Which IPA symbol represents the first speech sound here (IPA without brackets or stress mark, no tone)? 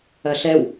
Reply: ɐ